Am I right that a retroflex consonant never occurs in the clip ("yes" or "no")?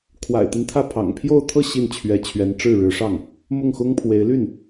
no